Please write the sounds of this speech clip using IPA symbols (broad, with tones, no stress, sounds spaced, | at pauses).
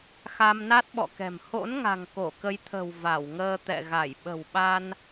x a˧ m n a˦˥ t̚ ɓ ɔ̰˧˨ k ɛ̤˨˩ m h o̰˧˥ n ŋ a̤˨˩ ŋ k o˧˩ k ə˨˦ j t̪ʰ ə̤˨˩ w v a˧˩ w ŋ əː˧ t̪ ɛ̰˧˨ ɣ a˧˩ j ɓ ə̤˨˩ w ɓ a˧ n